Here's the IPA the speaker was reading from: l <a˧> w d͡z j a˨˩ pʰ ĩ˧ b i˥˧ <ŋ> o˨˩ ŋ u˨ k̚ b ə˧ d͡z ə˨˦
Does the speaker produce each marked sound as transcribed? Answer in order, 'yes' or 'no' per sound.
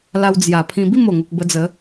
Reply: yes, no

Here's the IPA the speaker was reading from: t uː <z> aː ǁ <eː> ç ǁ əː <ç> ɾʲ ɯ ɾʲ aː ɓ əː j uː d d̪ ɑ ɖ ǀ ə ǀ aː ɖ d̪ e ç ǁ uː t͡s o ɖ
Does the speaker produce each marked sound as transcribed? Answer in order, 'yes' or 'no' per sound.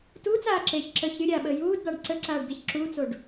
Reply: no, yes, yes

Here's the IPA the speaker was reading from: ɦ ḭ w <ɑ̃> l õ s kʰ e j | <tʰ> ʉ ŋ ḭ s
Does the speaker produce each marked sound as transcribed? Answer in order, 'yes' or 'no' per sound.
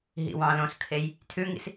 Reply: yes, yes

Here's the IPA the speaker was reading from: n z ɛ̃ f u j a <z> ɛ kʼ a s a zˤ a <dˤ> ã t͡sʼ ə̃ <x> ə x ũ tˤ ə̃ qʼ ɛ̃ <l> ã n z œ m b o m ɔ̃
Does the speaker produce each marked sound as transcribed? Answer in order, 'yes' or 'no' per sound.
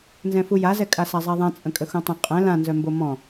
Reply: yes, no, no, yes

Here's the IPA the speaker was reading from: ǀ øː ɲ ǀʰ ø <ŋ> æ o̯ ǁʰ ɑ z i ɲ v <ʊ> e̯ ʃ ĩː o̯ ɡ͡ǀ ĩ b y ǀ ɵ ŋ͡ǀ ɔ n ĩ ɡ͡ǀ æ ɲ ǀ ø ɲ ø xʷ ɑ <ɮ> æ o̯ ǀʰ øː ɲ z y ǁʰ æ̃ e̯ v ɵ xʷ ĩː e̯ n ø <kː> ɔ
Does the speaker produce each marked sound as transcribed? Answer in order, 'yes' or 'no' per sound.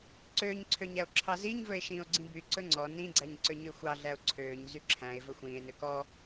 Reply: no, no, yes, no

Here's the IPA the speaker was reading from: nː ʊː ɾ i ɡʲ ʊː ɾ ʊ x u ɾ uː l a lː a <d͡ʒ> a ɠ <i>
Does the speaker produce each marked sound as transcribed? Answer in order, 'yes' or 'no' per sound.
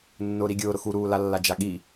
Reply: yes, yes

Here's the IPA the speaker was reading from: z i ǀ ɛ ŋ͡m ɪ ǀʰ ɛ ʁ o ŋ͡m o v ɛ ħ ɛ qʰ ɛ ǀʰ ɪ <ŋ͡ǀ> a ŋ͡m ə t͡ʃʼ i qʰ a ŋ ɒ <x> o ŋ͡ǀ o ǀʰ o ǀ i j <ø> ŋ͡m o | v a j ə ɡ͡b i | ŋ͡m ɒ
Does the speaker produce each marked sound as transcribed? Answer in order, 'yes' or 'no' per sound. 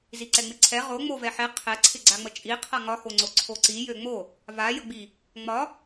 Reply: no, yes, yes

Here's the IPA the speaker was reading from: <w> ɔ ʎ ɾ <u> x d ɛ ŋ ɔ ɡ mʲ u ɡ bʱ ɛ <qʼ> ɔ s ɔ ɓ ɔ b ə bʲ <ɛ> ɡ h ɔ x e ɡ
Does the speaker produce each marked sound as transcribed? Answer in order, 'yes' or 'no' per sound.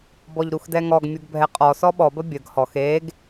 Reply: no, yes, yes, no

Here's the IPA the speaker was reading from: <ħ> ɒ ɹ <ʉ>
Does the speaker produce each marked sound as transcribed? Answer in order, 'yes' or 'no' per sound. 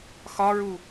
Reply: no, no

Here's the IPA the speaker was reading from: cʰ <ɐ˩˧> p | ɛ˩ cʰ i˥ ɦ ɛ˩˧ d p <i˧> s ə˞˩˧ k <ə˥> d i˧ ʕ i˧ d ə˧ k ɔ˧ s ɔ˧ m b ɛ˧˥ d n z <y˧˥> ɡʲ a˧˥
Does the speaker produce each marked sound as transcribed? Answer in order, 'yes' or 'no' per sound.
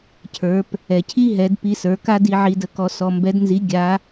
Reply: no, yes, no, no

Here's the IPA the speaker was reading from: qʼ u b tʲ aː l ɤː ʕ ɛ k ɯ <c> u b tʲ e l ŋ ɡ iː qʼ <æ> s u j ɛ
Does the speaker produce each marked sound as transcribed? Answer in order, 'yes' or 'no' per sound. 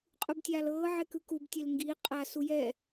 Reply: no, no

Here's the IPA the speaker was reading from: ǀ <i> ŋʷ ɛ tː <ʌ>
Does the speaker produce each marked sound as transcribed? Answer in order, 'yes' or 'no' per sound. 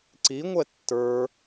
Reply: yes, no

